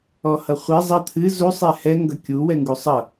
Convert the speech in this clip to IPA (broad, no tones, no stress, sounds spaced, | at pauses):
ɔ h ʌ χʷ ɛ zˤ ʌ t̪ʰ ɨ z u sˤ ɛ h ɛ ŋ ɡ ʌ kʲ u w ɛ ŋ ɡ u sˤ ʌ